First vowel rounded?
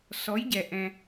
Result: yes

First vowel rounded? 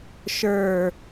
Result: no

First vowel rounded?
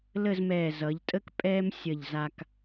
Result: no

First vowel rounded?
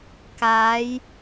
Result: no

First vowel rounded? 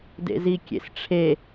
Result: no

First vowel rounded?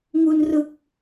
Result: yes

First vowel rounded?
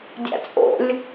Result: no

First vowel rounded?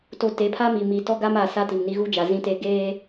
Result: yes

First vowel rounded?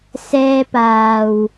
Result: no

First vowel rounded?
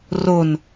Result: yes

